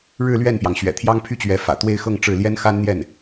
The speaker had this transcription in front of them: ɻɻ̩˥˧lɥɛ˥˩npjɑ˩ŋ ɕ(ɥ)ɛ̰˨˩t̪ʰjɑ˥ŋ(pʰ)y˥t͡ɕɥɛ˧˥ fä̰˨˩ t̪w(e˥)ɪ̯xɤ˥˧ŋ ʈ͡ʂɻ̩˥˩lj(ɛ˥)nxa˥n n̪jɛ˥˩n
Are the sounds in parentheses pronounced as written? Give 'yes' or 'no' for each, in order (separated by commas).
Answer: yes, yes, no, yes